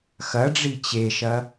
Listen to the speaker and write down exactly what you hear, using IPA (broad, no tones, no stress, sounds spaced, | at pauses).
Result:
x ɐ ɖ͡ʐ i t͡ɕ e ʃ ɐ